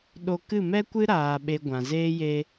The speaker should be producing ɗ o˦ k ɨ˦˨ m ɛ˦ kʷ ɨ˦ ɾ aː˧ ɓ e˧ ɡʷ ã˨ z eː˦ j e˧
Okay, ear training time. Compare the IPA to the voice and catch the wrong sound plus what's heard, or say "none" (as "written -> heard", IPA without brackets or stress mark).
o˦ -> o˧